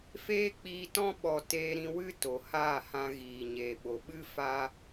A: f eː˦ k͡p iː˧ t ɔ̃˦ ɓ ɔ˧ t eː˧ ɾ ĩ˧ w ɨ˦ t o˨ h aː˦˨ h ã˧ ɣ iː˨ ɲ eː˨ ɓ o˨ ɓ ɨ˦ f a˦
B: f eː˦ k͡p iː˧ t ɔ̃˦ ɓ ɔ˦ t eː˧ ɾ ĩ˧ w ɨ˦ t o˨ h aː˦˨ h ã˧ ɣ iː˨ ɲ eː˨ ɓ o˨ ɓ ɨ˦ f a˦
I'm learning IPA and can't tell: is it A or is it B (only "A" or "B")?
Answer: A